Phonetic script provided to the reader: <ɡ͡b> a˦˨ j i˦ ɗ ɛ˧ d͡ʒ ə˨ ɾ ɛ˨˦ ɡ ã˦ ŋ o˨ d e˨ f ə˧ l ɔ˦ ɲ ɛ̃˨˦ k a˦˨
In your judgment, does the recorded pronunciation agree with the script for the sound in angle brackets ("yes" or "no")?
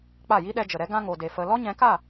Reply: no